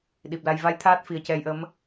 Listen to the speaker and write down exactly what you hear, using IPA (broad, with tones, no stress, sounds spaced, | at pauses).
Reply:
ɗ i˨˩ p̚ l a˧ j v a˧˥ j t̪ʰ aː˦˥ t̚ f i˨˩ ə̯ c ɛ˧ j ʔ ə˧˥ m